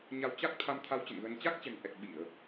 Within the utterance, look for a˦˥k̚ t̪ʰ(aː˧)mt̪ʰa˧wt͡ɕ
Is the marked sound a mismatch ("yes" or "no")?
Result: yes